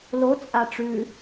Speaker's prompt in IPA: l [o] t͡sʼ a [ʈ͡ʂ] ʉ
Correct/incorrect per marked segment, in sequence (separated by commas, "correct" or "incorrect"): correct, correct